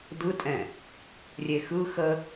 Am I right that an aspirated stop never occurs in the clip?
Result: yes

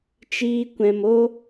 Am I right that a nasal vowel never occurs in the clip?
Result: no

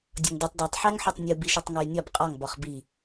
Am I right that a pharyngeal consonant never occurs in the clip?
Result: no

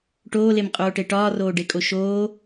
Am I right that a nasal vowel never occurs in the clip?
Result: yes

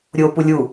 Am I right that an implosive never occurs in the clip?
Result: yes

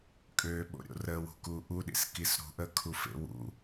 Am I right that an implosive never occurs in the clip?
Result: no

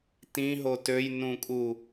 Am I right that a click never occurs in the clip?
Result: yes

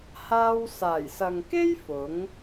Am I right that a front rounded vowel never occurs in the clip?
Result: yes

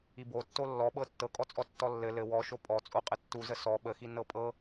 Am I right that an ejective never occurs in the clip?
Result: no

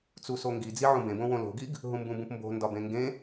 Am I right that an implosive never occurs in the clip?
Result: yes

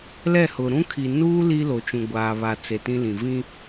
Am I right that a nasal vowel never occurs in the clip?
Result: no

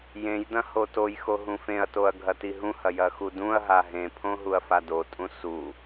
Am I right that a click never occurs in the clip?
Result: yes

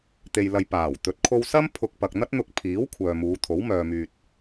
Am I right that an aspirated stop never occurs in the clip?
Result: no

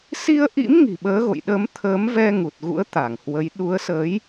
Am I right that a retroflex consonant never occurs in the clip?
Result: yes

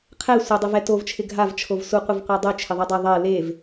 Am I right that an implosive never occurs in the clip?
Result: yes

